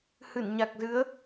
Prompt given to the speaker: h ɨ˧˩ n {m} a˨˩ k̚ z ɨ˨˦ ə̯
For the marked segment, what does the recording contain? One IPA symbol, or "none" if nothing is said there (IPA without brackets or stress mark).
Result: ɲ